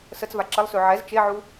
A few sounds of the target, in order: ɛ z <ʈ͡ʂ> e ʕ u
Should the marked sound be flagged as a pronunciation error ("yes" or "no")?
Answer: yes